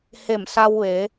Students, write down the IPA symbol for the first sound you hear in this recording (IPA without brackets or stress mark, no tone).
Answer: h